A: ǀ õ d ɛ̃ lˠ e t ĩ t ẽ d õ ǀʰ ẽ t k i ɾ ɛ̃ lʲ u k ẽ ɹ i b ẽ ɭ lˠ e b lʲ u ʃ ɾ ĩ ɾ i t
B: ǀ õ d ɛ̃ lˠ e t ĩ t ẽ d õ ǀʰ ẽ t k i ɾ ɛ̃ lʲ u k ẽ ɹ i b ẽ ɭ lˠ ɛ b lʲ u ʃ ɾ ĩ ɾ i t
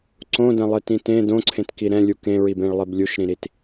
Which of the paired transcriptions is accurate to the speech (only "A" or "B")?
A